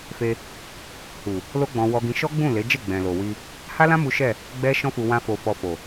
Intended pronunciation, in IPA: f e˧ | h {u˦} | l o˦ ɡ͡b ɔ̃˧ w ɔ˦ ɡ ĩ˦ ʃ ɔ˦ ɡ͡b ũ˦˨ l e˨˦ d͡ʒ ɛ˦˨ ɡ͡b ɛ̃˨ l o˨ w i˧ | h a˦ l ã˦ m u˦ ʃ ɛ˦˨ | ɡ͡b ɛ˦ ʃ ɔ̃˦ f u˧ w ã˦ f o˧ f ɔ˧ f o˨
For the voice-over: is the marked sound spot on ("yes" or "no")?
no